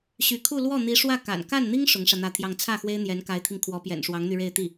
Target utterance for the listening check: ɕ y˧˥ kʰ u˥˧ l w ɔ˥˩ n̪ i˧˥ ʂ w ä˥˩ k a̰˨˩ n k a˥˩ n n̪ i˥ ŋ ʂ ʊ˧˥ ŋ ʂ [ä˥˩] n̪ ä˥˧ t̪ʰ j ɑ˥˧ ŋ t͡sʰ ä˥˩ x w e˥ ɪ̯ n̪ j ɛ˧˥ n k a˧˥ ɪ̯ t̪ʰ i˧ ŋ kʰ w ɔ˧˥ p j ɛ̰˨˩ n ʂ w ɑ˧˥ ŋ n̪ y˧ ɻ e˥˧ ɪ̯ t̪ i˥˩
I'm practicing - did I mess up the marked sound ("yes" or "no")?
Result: yes